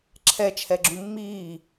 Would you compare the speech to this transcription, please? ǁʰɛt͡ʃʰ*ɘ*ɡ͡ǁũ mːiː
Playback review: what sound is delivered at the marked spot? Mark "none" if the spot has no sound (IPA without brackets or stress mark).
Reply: ɛ